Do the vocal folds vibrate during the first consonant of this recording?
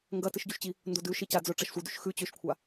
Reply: yes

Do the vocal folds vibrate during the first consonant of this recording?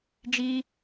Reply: yes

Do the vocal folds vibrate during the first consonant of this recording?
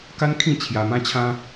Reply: no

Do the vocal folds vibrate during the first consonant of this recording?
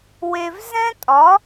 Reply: yes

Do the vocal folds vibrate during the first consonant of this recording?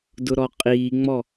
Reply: yes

